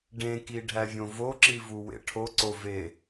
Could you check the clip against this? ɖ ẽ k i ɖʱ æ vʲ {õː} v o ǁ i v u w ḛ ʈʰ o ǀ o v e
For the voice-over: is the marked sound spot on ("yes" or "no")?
no